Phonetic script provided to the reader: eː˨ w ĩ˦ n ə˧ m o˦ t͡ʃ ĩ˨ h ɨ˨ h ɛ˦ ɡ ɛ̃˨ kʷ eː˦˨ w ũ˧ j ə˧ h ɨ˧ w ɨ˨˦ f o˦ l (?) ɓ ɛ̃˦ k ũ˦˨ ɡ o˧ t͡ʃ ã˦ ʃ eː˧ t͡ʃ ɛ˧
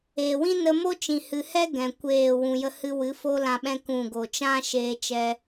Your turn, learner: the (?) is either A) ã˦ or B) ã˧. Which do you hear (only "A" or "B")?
B